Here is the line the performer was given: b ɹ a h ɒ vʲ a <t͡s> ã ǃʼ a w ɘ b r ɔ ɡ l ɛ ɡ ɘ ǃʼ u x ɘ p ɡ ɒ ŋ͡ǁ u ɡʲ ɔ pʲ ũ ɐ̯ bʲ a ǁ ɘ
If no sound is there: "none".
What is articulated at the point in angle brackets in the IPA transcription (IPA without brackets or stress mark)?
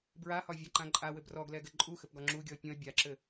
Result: ǃ